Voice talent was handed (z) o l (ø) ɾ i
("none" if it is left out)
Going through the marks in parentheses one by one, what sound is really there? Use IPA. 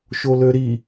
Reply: ʃ, ø

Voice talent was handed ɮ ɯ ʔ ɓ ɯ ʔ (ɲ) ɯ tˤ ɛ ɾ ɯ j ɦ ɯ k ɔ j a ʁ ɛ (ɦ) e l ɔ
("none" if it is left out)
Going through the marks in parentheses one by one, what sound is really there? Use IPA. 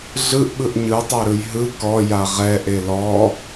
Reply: ɲ, ʔ

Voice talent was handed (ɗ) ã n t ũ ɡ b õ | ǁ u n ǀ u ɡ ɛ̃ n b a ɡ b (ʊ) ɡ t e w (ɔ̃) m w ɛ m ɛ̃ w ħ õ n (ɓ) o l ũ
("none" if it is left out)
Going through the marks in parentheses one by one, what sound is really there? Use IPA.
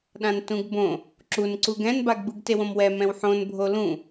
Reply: ɗ, ɯ, õ, bʱ

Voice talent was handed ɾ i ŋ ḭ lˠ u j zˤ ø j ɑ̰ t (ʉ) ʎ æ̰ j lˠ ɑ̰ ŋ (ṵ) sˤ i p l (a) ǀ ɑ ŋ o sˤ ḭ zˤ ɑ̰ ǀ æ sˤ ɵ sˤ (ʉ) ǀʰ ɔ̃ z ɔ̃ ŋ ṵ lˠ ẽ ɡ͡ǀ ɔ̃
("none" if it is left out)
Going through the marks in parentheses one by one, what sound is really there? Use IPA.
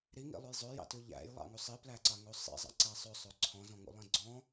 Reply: ʉ, u, æ, ø

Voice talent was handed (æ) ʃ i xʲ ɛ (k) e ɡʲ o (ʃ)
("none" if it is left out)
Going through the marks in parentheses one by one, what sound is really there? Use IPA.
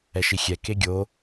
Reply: ɛ, k, none

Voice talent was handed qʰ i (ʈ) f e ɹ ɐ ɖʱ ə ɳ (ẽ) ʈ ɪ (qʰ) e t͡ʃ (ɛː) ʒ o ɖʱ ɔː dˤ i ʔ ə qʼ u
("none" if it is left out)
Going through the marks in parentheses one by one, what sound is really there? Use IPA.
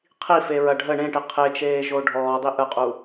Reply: none, ẽ, qʰ, eː

